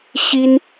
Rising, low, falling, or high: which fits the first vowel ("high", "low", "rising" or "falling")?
high